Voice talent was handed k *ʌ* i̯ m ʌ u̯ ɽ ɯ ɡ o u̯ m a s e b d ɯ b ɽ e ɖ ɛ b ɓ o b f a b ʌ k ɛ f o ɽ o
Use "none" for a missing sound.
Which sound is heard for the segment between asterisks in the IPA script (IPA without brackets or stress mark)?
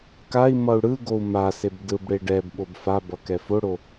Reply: a